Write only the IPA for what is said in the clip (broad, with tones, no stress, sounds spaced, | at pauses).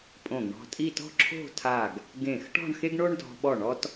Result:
pʼ õ˧˩ ɡ ɳ ɔ̤˧ tʼ i˥˧ t ɔ̤˥ ǁʰ o̤˥˧ tʰ a˧˩ ɡ | ɡ ẽ˧˩ x ʈ ɔ̤˥˧ ɳ x e˥ ɡ ɳ o˥ ɳ d ɔ̤˧ ɓ ɔ˧˩ ɳ ɔ˧ t